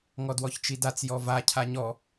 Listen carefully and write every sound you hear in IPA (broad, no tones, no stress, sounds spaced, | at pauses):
ŋ ɔ d w ɔ ç t͡ʃ i d a t͡s j ɔ v a cʰ a ɲ ɔ